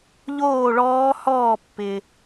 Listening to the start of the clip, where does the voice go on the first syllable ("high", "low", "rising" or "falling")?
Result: falling